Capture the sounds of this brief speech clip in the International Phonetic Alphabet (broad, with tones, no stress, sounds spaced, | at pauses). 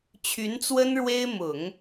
t͡ɕʰ y˧˥ n t͡s w ə˥ n ɻ w e˥ ɪ̯ m ʊ˨˩˦ ŋ